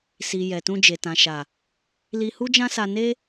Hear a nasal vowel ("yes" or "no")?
yes